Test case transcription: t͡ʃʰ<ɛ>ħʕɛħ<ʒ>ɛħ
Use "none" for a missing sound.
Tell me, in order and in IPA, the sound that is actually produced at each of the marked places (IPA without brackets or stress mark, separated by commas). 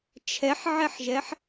ɛ, ʒ